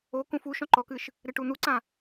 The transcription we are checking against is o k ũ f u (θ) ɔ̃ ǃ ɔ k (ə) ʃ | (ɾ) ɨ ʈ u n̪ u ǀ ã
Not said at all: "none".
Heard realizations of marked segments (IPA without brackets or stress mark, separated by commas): ʃ, ɨ, ɾ